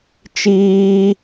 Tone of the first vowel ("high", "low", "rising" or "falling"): high